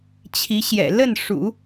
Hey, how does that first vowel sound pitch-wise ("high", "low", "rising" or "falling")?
rising